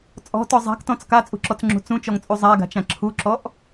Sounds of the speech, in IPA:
t͡sʼ ɔ̤ t ɔ zˤ a̤ k t ɔ̃ t͡s k a t͡sʼ ṳ ǁ ɔ t͡s ŋ͡ǁ ṳ t͡s ũ t͡ʃ ɔ ŋ t͡sʼ u zˤ a ɡ a̤ t͡ʃ ã ǁʰ u ǁ ɔ ʔ

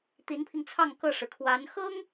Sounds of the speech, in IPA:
t̪ i˧˥ n pʰ i˧ ŋ t͡sʰ ɑ˥˧ ŋ k ɤ˥˩ ʂ ɻ̩˩ kʰ w a˧˥ n x ɤ˥ ŋ

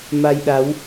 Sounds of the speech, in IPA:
m a˧ j ɗ a˨˦ w

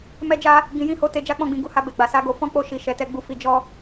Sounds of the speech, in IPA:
m ɛ˧ d͡ʒ a˧ | ɡ ĩ˨ j ĩ˨˦ h o˧ t e˧ d͡ʒ a˦ k͡p ɔ̃˧ ɡ͡b ĩ˨ ɡ u˧ h a˧ b e˨ ɡ͡b a˨ s a˨˦ ɡ o˧ f ɔ̃˦ k͡p o˦˨ ʃ i˧ ʃ ɛ˧ t ɛ˦ ɡ͡b u˦ f i˦ d͡ʒ ɔ˦

